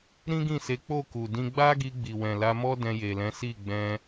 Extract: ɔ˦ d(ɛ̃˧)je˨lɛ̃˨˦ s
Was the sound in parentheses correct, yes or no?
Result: yes